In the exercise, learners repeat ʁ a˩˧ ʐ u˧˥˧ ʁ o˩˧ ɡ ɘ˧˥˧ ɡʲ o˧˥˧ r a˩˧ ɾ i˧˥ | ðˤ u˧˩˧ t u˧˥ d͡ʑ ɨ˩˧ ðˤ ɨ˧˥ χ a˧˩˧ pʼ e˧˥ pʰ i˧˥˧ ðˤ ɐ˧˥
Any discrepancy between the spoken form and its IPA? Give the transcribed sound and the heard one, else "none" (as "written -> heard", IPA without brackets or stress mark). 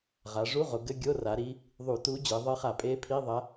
none